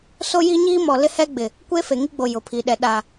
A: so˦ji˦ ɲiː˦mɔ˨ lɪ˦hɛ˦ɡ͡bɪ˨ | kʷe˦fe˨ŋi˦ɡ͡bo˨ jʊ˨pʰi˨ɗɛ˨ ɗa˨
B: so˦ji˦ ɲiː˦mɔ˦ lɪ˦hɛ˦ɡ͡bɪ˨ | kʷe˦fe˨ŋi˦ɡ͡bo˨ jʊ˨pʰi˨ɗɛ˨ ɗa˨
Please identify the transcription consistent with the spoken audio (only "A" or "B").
A